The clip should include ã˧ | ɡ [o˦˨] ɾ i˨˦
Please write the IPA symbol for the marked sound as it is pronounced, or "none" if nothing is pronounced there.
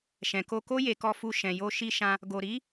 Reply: o˨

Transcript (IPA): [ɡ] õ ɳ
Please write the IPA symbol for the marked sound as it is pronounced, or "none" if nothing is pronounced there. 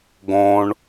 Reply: ɡ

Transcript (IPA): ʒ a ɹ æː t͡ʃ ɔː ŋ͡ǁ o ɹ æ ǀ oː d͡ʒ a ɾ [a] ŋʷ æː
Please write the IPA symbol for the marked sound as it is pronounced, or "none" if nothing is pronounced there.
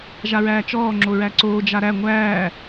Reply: æ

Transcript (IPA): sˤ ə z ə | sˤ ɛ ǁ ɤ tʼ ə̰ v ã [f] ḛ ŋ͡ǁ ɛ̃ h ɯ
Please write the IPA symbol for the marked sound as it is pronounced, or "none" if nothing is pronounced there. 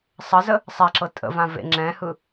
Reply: v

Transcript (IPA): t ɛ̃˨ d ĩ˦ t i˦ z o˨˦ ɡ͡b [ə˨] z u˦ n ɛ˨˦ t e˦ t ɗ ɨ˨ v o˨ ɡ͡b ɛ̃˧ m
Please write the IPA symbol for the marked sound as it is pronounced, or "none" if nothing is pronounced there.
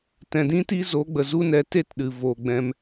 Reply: ə˨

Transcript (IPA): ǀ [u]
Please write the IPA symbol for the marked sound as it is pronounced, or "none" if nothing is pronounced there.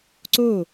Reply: o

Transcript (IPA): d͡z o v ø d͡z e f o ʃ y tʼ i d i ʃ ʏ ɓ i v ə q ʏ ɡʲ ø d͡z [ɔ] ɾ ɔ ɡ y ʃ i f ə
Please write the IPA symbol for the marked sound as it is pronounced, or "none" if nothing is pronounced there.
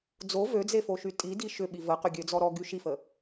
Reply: ɔ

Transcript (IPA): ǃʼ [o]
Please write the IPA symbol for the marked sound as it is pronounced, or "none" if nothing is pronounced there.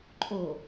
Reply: o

